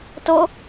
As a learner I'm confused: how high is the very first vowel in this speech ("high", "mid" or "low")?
high